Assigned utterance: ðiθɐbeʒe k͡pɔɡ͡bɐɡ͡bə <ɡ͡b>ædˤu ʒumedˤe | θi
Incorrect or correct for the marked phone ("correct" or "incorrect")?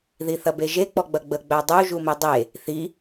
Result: correct